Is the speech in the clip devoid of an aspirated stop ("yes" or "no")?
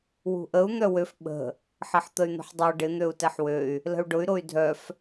yes